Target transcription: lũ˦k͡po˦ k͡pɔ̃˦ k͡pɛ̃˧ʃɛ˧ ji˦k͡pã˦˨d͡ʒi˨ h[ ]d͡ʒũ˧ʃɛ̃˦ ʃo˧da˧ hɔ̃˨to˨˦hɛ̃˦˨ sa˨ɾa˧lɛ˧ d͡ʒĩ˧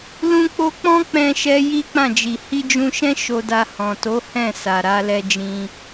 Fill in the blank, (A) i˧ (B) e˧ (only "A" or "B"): A